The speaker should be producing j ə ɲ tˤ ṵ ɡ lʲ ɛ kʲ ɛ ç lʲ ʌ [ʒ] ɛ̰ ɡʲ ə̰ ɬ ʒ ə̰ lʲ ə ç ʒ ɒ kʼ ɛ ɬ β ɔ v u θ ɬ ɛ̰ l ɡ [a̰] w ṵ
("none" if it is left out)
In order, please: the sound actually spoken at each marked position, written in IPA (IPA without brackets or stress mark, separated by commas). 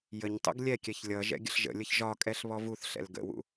ʒ, ə̰